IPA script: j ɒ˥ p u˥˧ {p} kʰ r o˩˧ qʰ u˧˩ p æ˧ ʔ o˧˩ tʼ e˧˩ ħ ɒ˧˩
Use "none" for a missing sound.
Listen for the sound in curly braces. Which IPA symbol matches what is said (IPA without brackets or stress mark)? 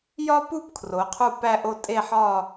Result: p